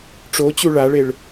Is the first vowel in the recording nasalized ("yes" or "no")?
no